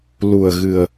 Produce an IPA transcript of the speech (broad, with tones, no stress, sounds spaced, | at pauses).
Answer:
l u˨˩ ə̯ ɣ ɨ˨˩ ə̯